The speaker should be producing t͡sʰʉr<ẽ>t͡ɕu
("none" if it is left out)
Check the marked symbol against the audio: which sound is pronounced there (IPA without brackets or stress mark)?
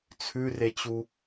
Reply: e